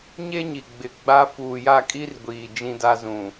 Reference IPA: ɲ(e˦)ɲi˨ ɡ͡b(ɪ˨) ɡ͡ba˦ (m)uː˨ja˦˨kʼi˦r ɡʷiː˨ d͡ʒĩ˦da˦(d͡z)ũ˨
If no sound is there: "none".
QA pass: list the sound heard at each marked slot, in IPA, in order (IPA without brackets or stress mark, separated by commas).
e˦, ɪ˨, f, z